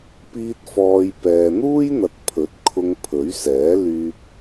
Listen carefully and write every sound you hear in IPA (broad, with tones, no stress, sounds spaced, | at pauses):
p iː˧ t̚ f ɔː˨ j p ɛː˨ n̪ uː˥ j n̪ ɐ˨ t̚ pʰ ɵ˨˥ t̚ kʰ ʊ˧ ŋ pʰ ɵ˨˥ ɥ s ɛː˨˥ l yː˧ p̚